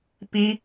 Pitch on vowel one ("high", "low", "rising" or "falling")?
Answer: high